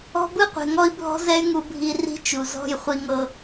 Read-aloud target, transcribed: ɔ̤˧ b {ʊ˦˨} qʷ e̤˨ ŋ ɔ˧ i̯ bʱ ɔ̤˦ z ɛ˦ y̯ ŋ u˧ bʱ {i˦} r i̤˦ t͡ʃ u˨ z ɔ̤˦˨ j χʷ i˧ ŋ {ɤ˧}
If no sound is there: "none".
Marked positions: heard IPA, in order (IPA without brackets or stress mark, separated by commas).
ɯ˦˨, i˧, ɤ˧